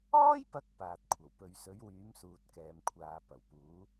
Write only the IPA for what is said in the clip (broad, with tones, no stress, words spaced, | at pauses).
ɔː˥jpɐ˨˥k̚ paː˨t̚kʷʰɐ˨˩w pɵ˨ɥsɵ˨˥ɥwyː˨˥m suː˨t̚kɛː˨mkʷʰaː˨ pɐ˨˩wpuː˨˥